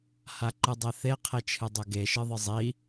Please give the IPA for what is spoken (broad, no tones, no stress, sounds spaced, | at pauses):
h a ǃ ɨ dˤ ɛ θ e qʰ e t͡ʃʰ ɨ dˤ o ɡ e ʃ ɨ ðˤ ɨ zˤ i